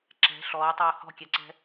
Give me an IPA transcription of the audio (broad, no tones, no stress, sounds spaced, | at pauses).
ǁ ɛ̤ ɬ ɔː tˤ oː h ɔ̤ kʲ ɛ ǀ ɛ̤